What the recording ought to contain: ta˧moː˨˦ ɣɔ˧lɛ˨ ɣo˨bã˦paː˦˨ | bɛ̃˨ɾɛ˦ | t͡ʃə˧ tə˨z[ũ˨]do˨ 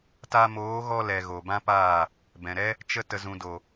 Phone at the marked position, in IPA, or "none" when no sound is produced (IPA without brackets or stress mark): ũ˨